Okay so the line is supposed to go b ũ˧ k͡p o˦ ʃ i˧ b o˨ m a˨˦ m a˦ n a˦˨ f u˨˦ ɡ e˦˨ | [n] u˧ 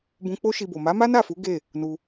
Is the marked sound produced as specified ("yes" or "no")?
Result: yes